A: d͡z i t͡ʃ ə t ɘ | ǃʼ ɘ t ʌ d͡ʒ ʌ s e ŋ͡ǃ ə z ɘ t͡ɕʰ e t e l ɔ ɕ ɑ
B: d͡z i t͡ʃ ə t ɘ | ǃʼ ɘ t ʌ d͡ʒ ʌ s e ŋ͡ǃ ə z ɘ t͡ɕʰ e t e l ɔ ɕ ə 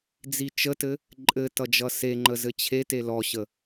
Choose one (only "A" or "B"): B